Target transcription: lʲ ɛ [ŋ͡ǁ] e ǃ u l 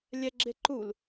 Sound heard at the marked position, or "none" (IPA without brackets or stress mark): ɡ͡ǁ